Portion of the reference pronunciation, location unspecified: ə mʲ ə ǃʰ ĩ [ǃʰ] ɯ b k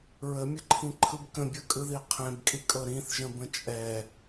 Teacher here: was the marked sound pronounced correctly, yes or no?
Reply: yes